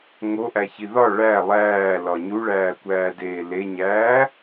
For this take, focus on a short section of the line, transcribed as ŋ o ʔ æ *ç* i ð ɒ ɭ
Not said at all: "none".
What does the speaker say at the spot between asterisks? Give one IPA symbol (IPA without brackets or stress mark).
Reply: ç